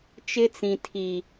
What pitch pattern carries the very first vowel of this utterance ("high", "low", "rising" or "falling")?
high